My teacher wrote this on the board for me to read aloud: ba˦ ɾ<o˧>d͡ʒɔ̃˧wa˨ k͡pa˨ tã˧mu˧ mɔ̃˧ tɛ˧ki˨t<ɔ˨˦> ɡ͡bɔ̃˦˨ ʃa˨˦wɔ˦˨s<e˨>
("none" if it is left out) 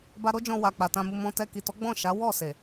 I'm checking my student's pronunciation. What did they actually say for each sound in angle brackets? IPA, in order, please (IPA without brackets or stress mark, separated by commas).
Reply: o˦, ɔ˨˦, e˨